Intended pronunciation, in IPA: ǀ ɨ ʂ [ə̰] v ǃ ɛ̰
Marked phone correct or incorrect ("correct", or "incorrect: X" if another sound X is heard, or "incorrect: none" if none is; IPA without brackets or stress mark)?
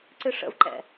correct